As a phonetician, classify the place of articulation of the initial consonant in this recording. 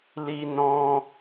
alveolar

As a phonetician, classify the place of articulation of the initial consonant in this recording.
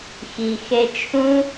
velar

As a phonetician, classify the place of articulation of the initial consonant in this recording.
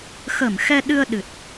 velar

